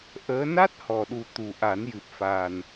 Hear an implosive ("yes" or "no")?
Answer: yes